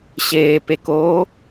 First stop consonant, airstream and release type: plain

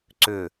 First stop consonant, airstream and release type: click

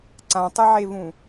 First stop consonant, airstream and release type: click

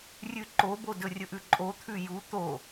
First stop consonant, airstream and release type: click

